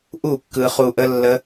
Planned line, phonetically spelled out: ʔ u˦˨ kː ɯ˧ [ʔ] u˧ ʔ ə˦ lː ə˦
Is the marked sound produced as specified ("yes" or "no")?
no